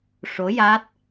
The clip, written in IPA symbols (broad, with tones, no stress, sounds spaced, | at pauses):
ʂ o˧˥ j a˦˥ t̚